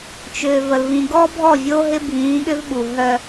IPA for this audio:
t͡ʃʏː˨və˨lvĩ˨ɡɔ˦ bʱɔ˦˨vʲoː˦ɦɪ˦ bʱĩː˨˦ɠʏ˦vɓu˨ ɦœ˦

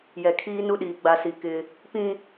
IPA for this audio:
jɛ˨kʰiː˦ nu˦ɗiː˨ ɡ͡ba˨si˨ kɪ˦ | pĩ˦

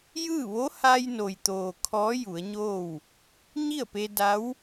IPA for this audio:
jɯː˥˨ ʋo˧˥haː˧jno˩j t̪oː˩ kʰɔː˧˥ju˩˧ə̯ɲoː˥˨w | ɲi˥˨ə̯pe˧da˧˥w

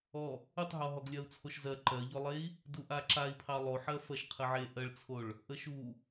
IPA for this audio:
ɔ | utˤɦɔɦɔɡ lʲɜu̯t͡sʰoʃzɜ ǃɜʎɔlˠei̯ | duʔaǁai̯pʰɑ lˠoħɜ fɜʃqʰəʕe ʔɜɭt͡sʰoɭ | ʔəʃu

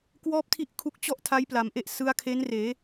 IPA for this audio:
kwɔː˥˩p̚tʰi˥˩ʔkʰu˦˥k̚ t͡ɕɔ˥˩ʔtʰa˦˥j pla˩˦mʔe˦˥ʔ sɯ˦˥a̯kʰe˦˥nreː˩˦

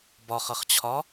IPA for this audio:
bɒχʌχt͡ɕʰɒ

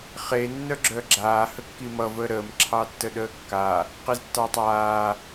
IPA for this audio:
χe nːœɡ͡ǁœɡ͡ǁaː həkːimʌ vəːɾəːm ǁʰɑtːəɗəːkːa | qiztːɑtˤaː

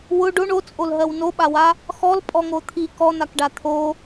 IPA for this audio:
wʊ ɖoɳ ot͡sʼolɦɜw noɓawa | xɔlpʼɔŋo t̪ʰi kɔn̪akɖa t̪ʰo

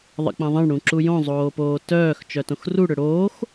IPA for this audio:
ðˤə̰k͡pɐ̃ðˤɐ̃ɳ ɽũǁujõ zˤoːpoːtœːx t͡ʃœtõxru ɽʏɽoːx

